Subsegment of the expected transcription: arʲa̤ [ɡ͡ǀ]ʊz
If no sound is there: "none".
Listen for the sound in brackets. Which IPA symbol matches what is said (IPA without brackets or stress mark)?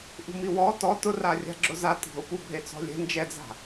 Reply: ɡ͡ǁ